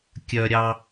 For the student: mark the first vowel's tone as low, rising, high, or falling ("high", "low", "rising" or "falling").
high